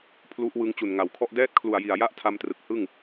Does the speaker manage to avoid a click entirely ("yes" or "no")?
yes